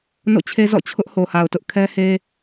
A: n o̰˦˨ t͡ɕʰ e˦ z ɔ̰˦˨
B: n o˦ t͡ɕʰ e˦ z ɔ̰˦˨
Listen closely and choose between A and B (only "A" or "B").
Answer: A